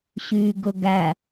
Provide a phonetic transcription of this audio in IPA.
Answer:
ɕyːɡɵɡæ

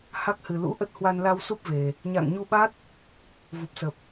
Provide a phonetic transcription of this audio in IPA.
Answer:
ha˦˥k̚hɨ˨˩lṵ˧˥ ʔə˦˥t̚hwa˧nla˧wsu˦˥p̚ ve˨˩ | ɲa̰˧˨ŋɲu˧ɓa˦˥t̚ | vu˨˩p̚sə˨˩p̚

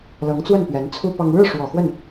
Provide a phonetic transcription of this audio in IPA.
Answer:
lɤ˧˥ŋt͡swə˥˩n pɥɛ˧˥nt͡sʰu˥ pɑ˥ŋ ɻɻ̩˥˩ʂwɔ˨˩ xwə˥˩n

